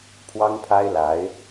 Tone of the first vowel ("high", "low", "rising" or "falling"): high